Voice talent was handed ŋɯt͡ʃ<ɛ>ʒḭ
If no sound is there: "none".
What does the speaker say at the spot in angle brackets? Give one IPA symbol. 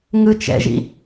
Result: ɛ̰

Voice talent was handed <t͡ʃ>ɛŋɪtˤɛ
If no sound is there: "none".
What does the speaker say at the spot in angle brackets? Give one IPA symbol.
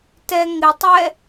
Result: t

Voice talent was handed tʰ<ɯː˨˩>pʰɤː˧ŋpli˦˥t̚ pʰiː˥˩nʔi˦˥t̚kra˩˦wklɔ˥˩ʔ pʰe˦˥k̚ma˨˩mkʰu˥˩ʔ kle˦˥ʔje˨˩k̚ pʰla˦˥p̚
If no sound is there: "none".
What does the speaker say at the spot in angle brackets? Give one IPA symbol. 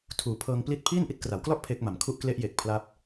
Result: uː˨˩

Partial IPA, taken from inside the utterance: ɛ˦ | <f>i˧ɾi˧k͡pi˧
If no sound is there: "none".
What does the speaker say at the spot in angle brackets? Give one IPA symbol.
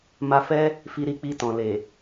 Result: f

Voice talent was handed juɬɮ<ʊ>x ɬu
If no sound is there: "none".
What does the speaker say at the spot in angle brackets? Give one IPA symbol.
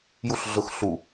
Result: ʊ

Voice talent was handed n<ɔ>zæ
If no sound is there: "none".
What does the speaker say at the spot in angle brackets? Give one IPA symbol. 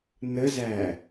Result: ə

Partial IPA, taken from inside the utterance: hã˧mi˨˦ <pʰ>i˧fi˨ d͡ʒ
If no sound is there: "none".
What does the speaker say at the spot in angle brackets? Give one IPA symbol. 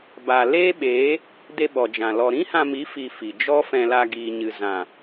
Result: f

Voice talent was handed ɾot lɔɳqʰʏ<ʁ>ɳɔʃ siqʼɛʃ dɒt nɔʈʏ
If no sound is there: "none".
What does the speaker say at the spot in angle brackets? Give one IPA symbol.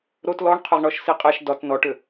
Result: ʁ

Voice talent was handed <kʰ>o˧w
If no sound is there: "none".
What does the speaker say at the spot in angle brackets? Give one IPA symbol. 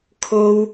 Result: kʰ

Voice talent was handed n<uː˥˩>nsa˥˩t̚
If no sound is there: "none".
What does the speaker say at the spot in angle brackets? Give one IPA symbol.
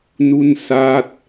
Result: u˥˩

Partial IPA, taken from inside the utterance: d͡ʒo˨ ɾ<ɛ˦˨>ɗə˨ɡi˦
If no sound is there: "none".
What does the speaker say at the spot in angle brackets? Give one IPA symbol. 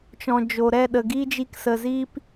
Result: ɛ˦˨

